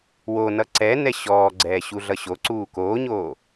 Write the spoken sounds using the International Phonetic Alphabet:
wonʌ ǀɛnɛ ɕɔːɡ͡ǀɛː ɕuɮʌɕoǀuː koːɲoː

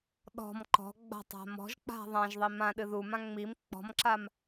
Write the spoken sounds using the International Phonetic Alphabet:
ɗɔ̤m ǃɔ̤ɡ͡ba̤ tˤa̤mɔ̤ʒk͡pa̤ ðˤãʒðˤi mãɗɨ ðumã ŋ͡mim k͡pɔ̤mǁam

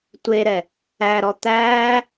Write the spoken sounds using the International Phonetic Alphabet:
tʷeɾɛ | æɾɔ t̪æː

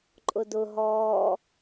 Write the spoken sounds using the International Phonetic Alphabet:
ǃʼʊdʊ ɦɔː

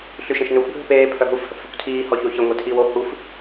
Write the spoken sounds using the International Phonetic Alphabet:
ɬyʃẽʃnøxʷ bʱøpeː pʰœɦuf hœpfykʷtʰiː hɔçoçə ŋʷɛtʰiːwo huf

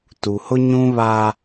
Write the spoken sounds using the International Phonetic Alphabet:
tu˨hʊ˦ɲũ˦βa˦

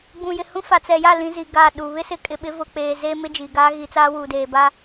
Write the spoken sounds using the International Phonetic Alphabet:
ɡ͡bũ˨jɪ˨hũ˦ fa˨t͡sɛ˨ja˦˨ lĩ˨˦zi˨ ɡa˦˨ɗu˨ βɪ˦sɪ˨kʼɪ˨ ɓɪ˨˦vʊ˨k͡peː˨ zeː˦mɪ˦d͡ʒiː˨ɡaː˦ ɣi˨˦t͡saː˦wuː˨ deː˨ba˦

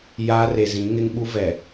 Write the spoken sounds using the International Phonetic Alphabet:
jaː˦r e˨zĩ˨˦ŋɪ˦ŋ ɓu˦vɛ˨

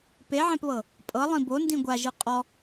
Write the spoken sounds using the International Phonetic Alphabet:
peʕẽpβɤ | pʼɤlˠĩ bondĩ ɡʷaʒɯ qʼɔ

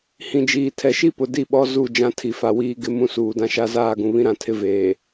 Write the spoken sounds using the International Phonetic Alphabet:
hĩ˨d͡ʒiː˨tʰɛ˨ ʃi˦pʊ˨ di˦˨ɓɔ˦ zu˦˨ d͡ʒã˦tʰi˨fa˨ wiː˦ɡɪ˦mũ˦ suː˨dã˦ʃa˦ zaː˦˨ɡũ˨βĩ˦ ɾã˦tʰɪ˦veː˨

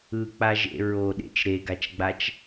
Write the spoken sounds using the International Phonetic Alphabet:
ɯk͡paʒḛ ɹoɗḛt͡ʃ ɾeɡat͡ʃɡ͡bat͡ʃ

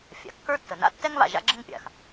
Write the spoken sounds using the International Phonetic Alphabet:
fʲa̰˩kːə˞˥tːə˩ na̰˥tːɛ˥ŋβa̰˩ ʒa̰˥ɡ͡ǁə˥ŋpʲa̰˩x

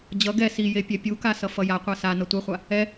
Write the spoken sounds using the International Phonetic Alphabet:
d͡ʑʌ ɡɛ sije pʲɛpʲuka sʌfʌjaqʷa sa nʌtʷɛχʷa | ɛ

